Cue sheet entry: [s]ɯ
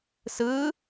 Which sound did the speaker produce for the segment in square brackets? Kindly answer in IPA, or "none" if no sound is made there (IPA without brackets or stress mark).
s